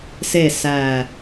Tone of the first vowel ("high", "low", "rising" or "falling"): falling